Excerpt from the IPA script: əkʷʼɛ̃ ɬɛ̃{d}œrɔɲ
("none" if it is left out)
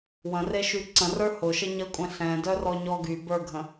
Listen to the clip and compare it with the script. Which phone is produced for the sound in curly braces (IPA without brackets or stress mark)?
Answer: d